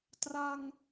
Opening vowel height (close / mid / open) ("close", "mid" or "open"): open